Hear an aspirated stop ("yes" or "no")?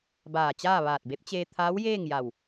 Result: yes